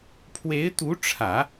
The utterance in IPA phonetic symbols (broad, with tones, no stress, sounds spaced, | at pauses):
pʰ w e˧˥ ɪ̯ t̪ u˧˥ ʈ͡ʂʰ ä˨˩˦